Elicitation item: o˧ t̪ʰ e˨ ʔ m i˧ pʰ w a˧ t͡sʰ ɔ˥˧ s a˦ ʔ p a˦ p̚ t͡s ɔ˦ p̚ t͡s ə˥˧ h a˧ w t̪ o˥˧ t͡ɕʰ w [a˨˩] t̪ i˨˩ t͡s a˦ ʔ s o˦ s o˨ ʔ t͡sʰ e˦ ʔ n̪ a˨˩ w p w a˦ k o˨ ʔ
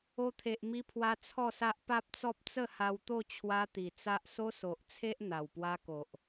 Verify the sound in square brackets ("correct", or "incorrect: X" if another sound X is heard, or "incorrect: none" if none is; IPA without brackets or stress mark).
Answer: incorrect: a˦